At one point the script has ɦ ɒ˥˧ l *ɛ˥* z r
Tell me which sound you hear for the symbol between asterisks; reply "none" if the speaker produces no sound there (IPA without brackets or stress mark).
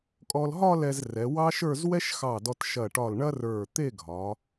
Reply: ɛ˧